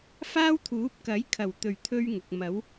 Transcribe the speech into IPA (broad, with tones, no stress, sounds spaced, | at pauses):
f aː˥ w t̪ʰ uː˨˥ p̚ k ɐ˨˥ j kʰ ɐ˨˩ w t̪ ɵ˨˩ ɥ t̪ʰ ɵ˥ ɥ ŋ ʊ˨ k̚ m ɐ˨˥ w